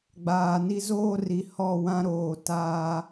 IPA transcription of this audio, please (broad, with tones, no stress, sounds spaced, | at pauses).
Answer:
ɡ͡b aː˨ n i˦ z oː˦ r i˨ h ɔ˦˨ w ã˦ ɾ oː˨ t aː˦